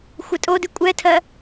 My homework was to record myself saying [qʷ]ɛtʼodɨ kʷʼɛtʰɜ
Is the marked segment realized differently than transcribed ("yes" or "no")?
yes